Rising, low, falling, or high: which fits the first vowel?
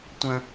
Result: high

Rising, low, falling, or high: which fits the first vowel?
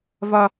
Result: low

